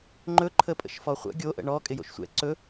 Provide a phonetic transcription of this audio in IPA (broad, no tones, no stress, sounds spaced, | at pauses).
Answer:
ŋ͡ǃ ɵ ǃʰ ə pʼ ə̰ ʃ f ɔ χʷ ə̰ ɡʲ o ʔ ə̰ ɳ ɔ kʼ ɪ j o̰ ʃ sʷ ɛ̰ ǀ ɵ